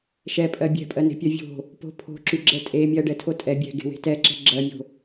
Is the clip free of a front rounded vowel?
no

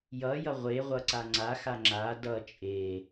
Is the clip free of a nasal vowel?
yes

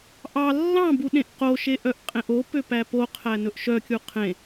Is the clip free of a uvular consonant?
no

